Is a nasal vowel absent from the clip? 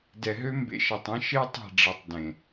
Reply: no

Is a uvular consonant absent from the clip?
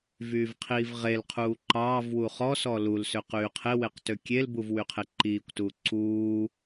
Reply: no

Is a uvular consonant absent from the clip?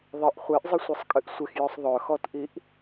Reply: no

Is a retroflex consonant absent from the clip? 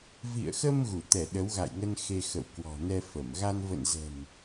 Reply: yes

